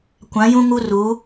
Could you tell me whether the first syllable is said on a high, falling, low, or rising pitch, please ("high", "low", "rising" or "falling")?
rising